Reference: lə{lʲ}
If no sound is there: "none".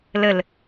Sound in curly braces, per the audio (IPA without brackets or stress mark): l